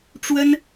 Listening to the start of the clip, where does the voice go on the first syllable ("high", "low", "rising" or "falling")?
high